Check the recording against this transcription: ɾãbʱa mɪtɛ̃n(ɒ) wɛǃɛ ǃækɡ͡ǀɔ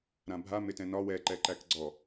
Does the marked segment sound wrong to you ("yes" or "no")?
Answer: no